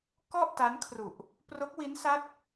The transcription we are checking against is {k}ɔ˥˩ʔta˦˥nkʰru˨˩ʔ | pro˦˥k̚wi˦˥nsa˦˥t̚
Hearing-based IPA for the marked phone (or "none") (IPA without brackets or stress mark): k